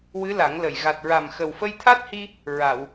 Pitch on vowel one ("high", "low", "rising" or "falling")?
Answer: rising